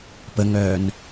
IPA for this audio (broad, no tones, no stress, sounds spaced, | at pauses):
p ə ŋ œː n